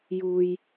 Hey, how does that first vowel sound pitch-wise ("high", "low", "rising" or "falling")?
low